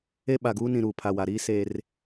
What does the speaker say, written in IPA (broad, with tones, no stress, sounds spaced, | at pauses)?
e˦ ɓ a˨ ɡ uː˦ n ĩ˨ ɾ uː˨ pʰ a˨ w a˨ ɾ iː˦ s e˦ r